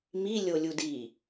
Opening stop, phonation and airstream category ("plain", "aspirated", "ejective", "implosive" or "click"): plain